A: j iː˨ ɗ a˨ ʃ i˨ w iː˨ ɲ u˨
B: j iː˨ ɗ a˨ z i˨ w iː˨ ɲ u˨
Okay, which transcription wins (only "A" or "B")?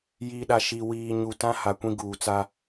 A